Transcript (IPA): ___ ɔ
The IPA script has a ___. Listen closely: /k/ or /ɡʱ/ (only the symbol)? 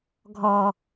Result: ɡʱ